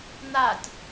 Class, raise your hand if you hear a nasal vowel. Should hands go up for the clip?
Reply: no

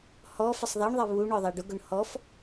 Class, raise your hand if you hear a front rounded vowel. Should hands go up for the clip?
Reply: no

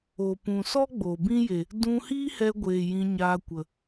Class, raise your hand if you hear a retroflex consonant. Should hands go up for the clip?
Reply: no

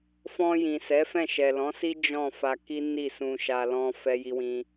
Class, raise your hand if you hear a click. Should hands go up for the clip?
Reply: no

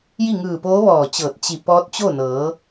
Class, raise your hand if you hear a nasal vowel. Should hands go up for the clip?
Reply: no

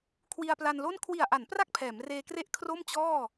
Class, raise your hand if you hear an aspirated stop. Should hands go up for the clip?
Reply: yes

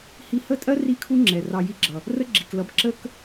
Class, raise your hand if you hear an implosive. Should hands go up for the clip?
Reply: no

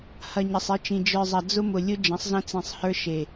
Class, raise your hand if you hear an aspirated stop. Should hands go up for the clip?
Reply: no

